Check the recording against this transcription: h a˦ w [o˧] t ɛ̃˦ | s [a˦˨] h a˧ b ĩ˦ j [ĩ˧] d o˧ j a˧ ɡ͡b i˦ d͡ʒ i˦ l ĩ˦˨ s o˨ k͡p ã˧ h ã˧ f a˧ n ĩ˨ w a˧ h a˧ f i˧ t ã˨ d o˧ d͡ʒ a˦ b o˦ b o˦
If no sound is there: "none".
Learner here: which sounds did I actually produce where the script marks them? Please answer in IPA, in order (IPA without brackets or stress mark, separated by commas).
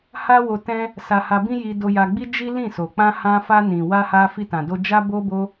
o˧, a˧, i˧